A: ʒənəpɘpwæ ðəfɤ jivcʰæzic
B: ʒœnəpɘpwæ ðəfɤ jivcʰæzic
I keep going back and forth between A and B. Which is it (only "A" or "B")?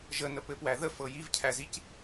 A